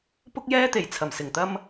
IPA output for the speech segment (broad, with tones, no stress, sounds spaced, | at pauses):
p ʊ˥ k̚ j ɛː˥ t̪ e˨˩ j t͡sʰ ɐ˨˩ m s ɪ˨˩ ŋ t̪ ɐ˥ m